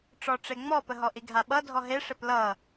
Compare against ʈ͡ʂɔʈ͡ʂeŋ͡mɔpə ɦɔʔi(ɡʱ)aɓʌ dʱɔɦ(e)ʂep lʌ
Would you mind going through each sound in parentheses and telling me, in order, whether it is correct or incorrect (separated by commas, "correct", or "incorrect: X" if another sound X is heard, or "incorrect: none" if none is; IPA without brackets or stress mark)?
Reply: correct, correct